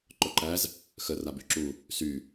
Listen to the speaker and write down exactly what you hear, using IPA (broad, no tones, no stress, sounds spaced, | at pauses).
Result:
ǃ œ ǃ æ z | x ə r a b y ǁ u | s y